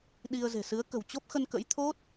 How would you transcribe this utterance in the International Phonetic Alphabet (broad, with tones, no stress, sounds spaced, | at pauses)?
ɗ i˧ ə̯ z e̤˨˩ s ɨ˨˦ ə̯ k ə̤˨˩ w t͡ɕ o˦˥ p̚ x ə˧ n k ə̰˧˥ j t̪ʰ o˦˥ t̚